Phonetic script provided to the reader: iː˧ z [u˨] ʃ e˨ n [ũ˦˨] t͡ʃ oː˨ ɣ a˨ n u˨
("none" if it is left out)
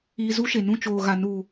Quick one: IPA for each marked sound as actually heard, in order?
u˦, ũ˦˨

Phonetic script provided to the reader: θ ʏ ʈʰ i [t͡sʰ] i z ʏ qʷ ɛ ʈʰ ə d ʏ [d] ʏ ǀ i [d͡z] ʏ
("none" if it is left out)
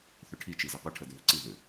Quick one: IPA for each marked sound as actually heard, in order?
t͡ʃ, ð, ð

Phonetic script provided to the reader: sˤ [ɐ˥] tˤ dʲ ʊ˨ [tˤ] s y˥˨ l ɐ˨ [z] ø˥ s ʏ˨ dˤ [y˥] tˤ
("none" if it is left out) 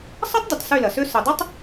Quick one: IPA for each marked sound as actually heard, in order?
ɐ˥, tˤ, s, ɪ˥

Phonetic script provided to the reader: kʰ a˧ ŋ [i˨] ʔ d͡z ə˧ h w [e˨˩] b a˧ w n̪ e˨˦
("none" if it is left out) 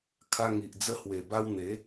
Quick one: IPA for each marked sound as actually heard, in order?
i˨, e˨˩

